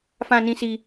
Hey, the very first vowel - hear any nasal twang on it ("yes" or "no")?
yes